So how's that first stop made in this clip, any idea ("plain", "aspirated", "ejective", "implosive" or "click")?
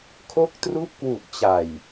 aspirated